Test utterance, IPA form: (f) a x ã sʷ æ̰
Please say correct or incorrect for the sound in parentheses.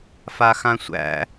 correct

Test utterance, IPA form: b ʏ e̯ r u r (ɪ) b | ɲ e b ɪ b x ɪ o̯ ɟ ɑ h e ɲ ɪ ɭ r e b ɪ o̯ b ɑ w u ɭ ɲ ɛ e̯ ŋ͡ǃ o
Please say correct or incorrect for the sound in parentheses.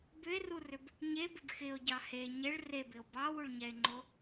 incorrect: ʏ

